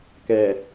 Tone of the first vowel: low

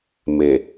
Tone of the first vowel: low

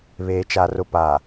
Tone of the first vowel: low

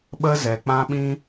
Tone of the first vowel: high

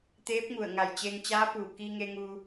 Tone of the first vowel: rising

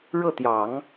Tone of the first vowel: falling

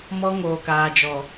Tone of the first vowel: high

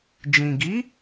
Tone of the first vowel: low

